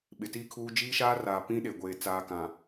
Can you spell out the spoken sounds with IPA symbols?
ɓɪ˨ti˦kʰuː˦ d͡ʒiː˦ʃaː˦raː˨ pĩ˦ɗe˨ ɡʷeː˨ t͡saː˨ kã˨

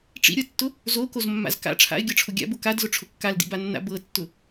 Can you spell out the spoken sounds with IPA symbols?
ʈ͡ʂḭɾʲɤtːʊ | zokozmːa̰z ka̰ ʈ͡ʂʰa̰ɪ̯ɡʲɤʈ͡ʂʰʊ ɡʲa̰bʊ kadzʊʈ͡ʂʰʊ kːaldḭbanːa̰ bɤtːʊ

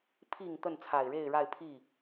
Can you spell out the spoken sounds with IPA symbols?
pʰi˨˩ŋ t̪ə˥˩nt͡sʰa˨˩ɪ̯ɻe˥˧ɪ̯ɻa˥˧ɪ̯ pʰi˥˩

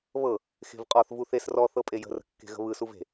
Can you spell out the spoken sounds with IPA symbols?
βɤ | xe̤vqʼɔθ vuθes rɔ θɤpʼejə̤ rə̤kːe̤ɣə̤βɯ suve̤

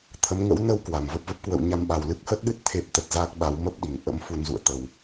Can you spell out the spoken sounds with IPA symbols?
t̪ʰə˨˦mŋə̰˧˥w nə˨˦w kwa˨˩mvə˦˥p̚və˦˥p̚ kwə̰˧˨wɲa˧mɓa˨˩w lɨ˦˥k̚hə˦˥t̚ɗɨ˦˥t̚ t̪ʰe˦˥p̚t̪ə˨˩t̚zaː˦˥k̚ɓa˨˦w mə˦˥p̚ɗi˧˩ŋ ʔə̰˧˥m fu˧nzṵ˧˨ə̯ t̪ə˨˩w

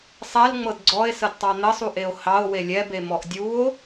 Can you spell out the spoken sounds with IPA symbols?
sˤɛlŋ͡mɤd ɡ͡ǀɔe̯sədtˤɑ n̪əsˤuʔeo̯ hɑo̯ welʲɛbe mɔʔdʲuo̯

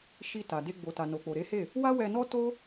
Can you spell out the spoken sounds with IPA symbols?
ʃi˧ ta˨de˧ ɡ͡bo˨ta˨no˨k͡po˨ ɾe˨˦he˦˨ | wa˦wɛ˧nɔ˦ to˦

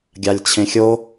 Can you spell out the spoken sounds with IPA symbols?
ɡʲalʲt͡ɕʰẽxʲo

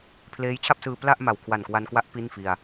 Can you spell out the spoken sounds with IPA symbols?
pʰleː˦˥jt͡ɕʰa˥˩p̚sɯː˧ pla˥˩ʔma˨˩w kʰwa˨˩nkwa˧n kwa˦˥ʔ pi˥˩n fi˧a̯

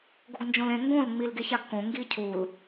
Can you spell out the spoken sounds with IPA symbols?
ɡoɡnd͡ʒõlẽ ŋɡõl ŋ͡milɡeçaɡkõ ŋɡicʰul

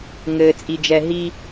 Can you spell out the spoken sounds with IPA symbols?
ŋɘː˨t͡sʼi˨d͡ʒɛ˨ɦi˦

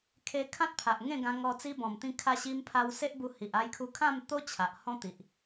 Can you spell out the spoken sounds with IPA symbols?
kʰe˧ kʰã˦t̚pʰa˨ʔ ŋẽ˥˧ɡã˧ŋɔ˧ t͡si˧bɔ̃˨˩mt̪ĩ˧ kʰa˧ɕi˧mpʰa˧w se˦ʔbu˧hi˨ʔ a˦jkʰu˦ kʰã˥˧mt̪o˦ t͡ɕʰa˨ʔhɔ̃˦ t̪i˨ʔ

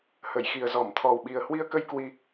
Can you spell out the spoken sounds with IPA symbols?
hə˧˩jxi˨˩ə̯zɔ˧˩m t̪ʰɔ˨˩wɓi˨˩ə̯hwi˧ə̯kə˧j kwi˧

